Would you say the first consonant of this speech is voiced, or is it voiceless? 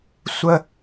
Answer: voiceless